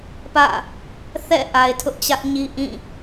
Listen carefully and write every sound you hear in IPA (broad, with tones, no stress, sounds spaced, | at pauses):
p ä̰˦˨ | θ ɛ̰˦˨ ʔ a˨ ɪ̯ tʰ ʊ˦ ʔ t͡ɕ ä˦ ʔ ɲ i˦ ʔ ĩ˦˨